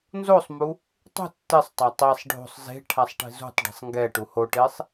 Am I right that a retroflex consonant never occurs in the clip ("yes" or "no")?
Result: no